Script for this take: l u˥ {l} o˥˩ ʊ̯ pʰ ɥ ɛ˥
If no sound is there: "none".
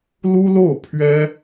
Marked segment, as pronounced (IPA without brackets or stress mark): l